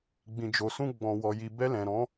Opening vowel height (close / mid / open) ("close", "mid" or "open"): close